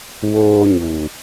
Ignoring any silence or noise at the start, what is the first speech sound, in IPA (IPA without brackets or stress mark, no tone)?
w